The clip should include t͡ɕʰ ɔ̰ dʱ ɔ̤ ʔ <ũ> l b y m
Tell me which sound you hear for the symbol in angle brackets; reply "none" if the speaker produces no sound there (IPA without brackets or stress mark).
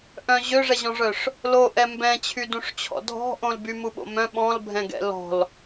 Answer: õ